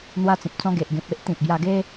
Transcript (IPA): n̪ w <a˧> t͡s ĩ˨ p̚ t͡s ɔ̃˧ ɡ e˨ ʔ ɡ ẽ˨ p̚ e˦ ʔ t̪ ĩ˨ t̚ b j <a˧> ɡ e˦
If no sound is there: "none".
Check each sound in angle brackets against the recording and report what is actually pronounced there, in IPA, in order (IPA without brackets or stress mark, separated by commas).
a˧, a˧